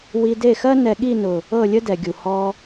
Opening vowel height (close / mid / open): close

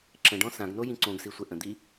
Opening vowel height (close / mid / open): mid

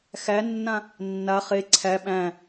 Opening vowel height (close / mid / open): open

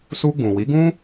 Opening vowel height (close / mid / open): close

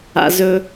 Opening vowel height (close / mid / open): open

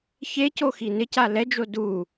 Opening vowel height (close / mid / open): mid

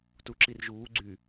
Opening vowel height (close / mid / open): close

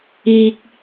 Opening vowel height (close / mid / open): close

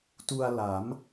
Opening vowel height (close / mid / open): close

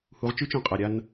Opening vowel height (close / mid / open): close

